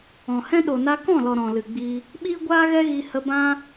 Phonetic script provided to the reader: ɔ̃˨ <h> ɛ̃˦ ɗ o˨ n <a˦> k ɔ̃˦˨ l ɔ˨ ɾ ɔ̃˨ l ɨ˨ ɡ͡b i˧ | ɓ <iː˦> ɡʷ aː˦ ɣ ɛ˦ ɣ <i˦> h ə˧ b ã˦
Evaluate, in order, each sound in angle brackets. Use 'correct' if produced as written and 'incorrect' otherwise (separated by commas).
correct, incorrect, correct, incorrect